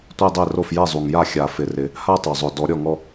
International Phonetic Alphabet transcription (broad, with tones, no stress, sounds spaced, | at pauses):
tʷ ɛ˥˧ dˤ e˥˩ r o˥˩ f j ɛ˥˩ zˤ u˨˩ ŋ j a˥˩ xʲ a˨˩˦ f ɪ˨˩ r ɪ˨˩˦ | h a˥˧ tˤ o˨˩ zˤ ʊ˨˩ d ɔ˨˩˦ ɾʲ ɔ˥˩ ŋ ɔ˥˧